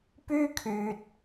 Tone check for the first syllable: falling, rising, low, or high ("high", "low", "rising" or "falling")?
high